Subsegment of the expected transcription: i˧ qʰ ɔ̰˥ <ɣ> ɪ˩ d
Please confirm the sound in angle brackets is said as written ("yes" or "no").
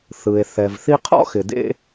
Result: no